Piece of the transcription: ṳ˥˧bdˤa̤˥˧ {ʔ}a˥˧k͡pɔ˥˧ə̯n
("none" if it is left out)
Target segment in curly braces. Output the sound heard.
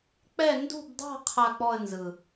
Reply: qʰ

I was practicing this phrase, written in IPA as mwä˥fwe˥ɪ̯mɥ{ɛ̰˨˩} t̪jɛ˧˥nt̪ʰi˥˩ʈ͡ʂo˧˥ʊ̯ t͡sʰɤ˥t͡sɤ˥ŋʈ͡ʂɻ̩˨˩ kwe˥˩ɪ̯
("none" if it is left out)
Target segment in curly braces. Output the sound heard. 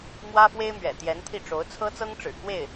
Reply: ɛ̰˨˩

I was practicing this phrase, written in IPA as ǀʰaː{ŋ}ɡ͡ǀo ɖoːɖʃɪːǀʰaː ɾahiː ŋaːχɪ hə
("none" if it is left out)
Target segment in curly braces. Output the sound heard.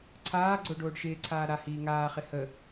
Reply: none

